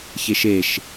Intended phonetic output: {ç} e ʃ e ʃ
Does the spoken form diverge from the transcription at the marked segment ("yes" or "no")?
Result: no